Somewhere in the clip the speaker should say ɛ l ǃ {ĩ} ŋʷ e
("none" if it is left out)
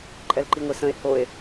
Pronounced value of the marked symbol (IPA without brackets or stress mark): i